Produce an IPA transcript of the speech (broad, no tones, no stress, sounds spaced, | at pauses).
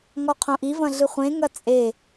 ŋ ɔ qʰ õ ʔ i v ɐ̃ ɮ ɨ χʷ ẽ ŋ ɐ t͡sʼ e